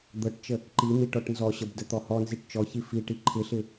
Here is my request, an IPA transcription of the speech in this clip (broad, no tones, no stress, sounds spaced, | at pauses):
d̪ ɤ ʈ t͡ʃ ə | ǃ i n̪ i ʈ ɔ ʈ n z ɔ ɕ ə b d ə t̪ ɔ h ɔ n z i ʈ t͡ʃ ɔ ç i f i ʈ i ǃʰ ɪ ɬ ɪ